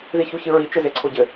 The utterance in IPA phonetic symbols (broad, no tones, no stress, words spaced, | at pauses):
ðiçuçɨɹi t͡ʃɘzeǀʰoɟɘ